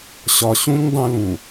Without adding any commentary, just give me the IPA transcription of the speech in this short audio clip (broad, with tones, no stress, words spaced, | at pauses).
ɕɒ˨ɕũ˦ɲ dˤũ˦lũ˨